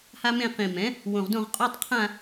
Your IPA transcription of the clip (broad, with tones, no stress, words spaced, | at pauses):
ha˥mẽ˥˧qĩ˨˩ mɛ̃˩˥ | wõ˨˩ʁdõ˥˧ʁ qʼo˧˥˧tˤqʰã˥˧